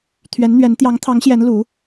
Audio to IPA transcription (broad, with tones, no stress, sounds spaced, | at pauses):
t̪ʰ ɥ ɛ˧˥ n n̪ ɥ ɛ˧˥ n t̪ j ɑ˧˥ ŋ t̪ʰ ɑ˧˥ ŋ ɕ j ɛ˧˥ n l u˧˥